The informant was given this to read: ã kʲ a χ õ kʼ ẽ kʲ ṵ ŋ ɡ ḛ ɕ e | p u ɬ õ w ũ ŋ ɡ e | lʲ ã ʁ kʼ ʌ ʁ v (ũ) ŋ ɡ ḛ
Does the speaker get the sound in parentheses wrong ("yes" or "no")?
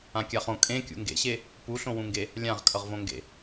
yes